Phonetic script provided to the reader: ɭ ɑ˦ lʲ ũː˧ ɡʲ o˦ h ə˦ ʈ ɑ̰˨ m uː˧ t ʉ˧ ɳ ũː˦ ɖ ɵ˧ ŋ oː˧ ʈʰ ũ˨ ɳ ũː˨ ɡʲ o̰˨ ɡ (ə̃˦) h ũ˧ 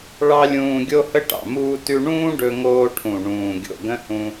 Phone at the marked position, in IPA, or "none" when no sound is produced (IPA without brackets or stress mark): ə̃˦